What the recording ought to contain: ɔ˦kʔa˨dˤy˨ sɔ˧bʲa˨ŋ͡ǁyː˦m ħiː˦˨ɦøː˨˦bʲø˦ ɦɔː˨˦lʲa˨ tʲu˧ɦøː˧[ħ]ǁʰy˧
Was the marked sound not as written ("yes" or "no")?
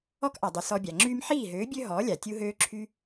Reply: yes